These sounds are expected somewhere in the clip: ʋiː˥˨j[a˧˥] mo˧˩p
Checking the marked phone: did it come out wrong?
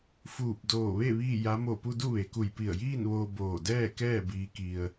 no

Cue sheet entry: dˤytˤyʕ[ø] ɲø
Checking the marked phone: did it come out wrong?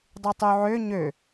no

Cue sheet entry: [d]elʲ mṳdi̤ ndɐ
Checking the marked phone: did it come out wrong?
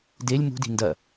no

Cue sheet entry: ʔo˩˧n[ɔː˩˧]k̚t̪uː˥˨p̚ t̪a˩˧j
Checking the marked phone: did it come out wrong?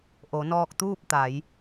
yes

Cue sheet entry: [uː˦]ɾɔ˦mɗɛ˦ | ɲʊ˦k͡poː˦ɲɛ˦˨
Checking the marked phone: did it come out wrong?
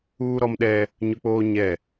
no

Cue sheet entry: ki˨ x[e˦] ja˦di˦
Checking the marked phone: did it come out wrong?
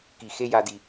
no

